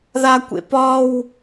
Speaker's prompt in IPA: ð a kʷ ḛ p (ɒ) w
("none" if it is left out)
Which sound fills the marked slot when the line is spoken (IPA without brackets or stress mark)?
ɒ